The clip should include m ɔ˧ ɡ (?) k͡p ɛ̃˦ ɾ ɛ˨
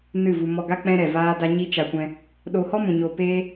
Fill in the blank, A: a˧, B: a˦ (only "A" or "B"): B